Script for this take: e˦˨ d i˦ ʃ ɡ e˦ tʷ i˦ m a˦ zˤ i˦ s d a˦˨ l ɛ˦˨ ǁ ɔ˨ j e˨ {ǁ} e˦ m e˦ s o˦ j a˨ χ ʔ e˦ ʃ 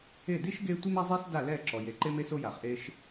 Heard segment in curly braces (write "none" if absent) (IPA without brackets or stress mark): ǃ